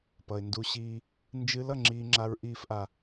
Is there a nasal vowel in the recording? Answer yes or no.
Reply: no